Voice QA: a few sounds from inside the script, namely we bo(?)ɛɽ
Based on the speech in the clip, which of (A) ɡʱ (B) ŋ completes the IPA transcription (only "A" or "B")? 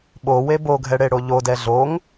A